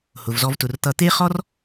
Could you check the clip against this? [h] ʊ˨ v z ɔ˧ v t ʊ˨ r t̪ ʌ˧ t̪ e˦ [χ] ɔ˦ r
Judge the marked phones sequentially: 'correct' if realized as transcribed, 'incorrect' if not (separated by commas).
correct, correct